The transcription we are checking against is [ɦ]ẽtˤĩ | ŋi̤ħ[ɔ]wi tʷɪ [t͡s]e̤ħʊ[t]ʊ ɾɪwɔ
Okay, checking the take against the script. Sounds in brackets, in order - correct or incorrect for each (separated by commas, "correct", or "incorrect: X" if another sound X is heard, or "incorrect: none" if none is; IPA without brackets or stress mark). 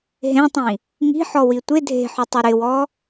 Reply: correct, correct, incorrect: dʱ, incorrect: tˤ